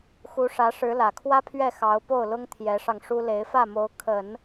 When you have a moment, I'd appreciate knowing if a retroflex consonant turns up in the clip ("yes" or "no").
yes